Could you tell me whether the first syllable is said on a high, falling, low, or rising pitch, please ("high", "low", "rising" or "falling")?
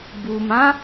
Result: low